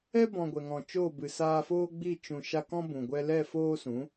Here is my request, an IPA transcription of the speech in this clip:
ɛ˦ b ɔ̃˨ ɡʷ ɛ˨ ŋ ɔ̃˨ t͡ʃ oː˦˨ b ɨ˨ s aː˧ f oː˦ ɡ͡b i˦˨ t͡ʃ ũ˨ ʃ a˧ k ɔ̃˦ b ũ˨ ɡʷ ɛ˦ l ɛ˦˨ f oː˦ s ũ˨˦

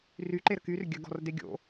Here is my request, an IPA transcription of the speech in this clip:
r y ǃ e ɾ ə k y r ɡʲ ə ɡ ɔ̤ r d e ɡʲ o̰

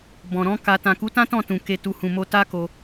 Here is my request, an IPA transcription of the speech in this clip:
b ɔ̃˨ ɾ ɔ̃˨˦ k a˧ t ã˨ k u˨˦ t ã˦ t ɔ̃˦˨ t ũ˨ k e˨ t u˨ h ũ˨ m o˧ t a˦ k o˧

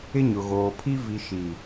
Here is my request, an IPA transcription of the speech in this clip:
ɪ˦ ɲ ʊ˨ ɣ oː˨ pʰ i˦ v i˨ ʃ i˨

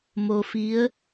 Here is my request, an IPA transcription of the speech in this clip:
m o˧ f i˧˥ ə̯

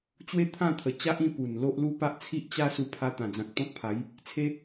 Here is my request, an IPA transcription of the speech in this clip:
t͡ɕ w e˦ t̪ʰ ã˥˧ t̪ʰ ə˧ t͡ɕ a˦ ʔ ĩ˥˧ p u˨˩ n l o˦ ʔ l u˦ p a˦ ʔ t͡sʰ i˦ ʔ t͡ɕ a˦ s u˧ pʰ a˧ t̪ ã˨˩ d͡z ã˨ k̚ t̪ ɔ̃˦ k̚ pʰ a˨˦ j | t͡sʰ e˦

